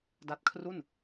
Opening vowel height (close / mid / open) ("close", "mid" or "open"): open